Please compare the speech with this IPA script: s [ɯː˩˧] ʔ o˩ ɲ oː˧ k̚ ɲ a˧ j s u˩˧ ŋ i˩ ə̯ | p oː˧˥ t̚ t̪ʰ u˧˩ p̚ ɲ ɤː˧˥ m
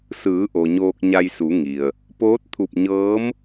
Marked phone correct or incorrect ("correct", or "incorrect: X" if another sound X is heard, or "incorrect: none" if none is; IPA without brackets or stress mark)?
correct